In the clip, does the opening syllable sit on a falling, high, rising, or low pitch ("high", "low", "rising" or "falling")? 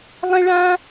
high